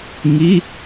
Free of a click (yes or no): yes